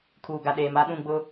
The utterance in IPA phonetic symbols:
kʰ uː˨ ɡ a˨ ɗ eː˨ m a˦ ɗ ũ˦˨ ɡ͡b ʊ˦

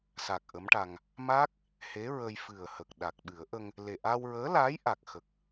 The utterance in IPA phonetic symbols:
s a˨˩ k̚ ʔ ə˧˥ m ʈ a˧ ŋ | m a˦˥ k̚ | h e˧˥ ɹ ə˧ j f ɨ˨˩ ə̯ h ə˨˩ k̚ ɗ a˨˩ k̚ ɓ ɨ˨˩˦ ə̯ ʔ ə˧ ŋ | l e˨˩ ʔ a˧ w ɹ əː˧˥ l aː˧˥ j ʔ a˨˩ k̚ x ə˨˩ k̚

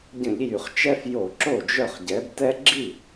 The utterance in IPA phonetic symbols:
ɟ ə̃˧˩˧ ʎ j y˨˩ χ t͡ʃ ɛ˦ f j o˧˩˧ ǁ o˥˩ d͡ʒ œ˥˩ χ ɟ ɛ˨˥ b t ɛ˦ ɡ͡ǁ i˥˩

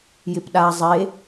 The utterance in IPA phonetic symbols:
j ɪ p ɗ a zˤ e

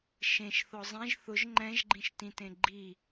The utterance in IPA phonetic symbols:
ʃ ẽ ʃ θ ɔ zˤ ẽ ʒ θ ʊ ʒ ŋ͡ǃ ɛ̃ ʒ ɡ͡ǃ ĩ ʃ t ĩ t ẽ ɡ͡ǃ i

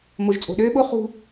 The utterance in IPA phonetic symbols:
m o˨ ʒ t͡sʼ o̤˨ ɗ øː˦ ɓ o˦ χ ṳ˦

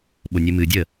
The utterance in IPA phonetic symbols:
ɓ ʊ nʲ ɨ m ɨ dʲ ə

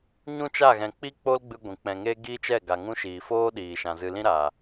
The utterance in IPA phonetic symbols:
ɲ ũ˦ t͡ʃ a˦˨ ɣ ɛ̃˨ k͡p i˦ k͡p o˦ l ɡ͡b ɨ˧ ɡʷ ĩ˨ k͡p ɛ̃˨ ŋ eː˦ ɡ iː˦ t͡ʃ ɛ˦˨ ɡ a˨ ŋ ũ˧ ʃ iː˨ f oː˦ ɗ iː˨ ʃ ã˨ z ɨ˧ l ĩ˦ ɾ aː˨

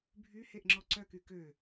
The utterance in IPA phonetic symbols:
bʱ y h e ʔ ŋ͡ǁ ɔ ǀ œ k y k ø

